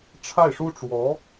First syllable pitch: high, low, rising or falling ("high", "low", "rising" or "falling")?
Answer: falling